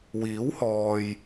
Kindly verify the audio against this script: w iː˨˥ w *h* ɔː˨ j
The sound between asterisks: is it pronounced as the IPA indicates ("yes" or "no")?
yes